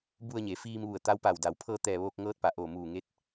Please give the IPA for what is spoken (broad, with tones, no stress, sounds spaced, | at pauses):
b u˧ ə̯ ɲ e˩˧ f iː˧ m ʋ u˧˩ ə̯ t̪ a˧˥ w p a˧˩ w d a˩˧ w pʰ ɤː˧ t̪ ɛː˧˩ ʋ oː˧ k̚ ŋ ɤː˧˥ t̚ p a˩˧ ʔ oː˧˩ m uː˧˩ ŋ e˧˥ t̚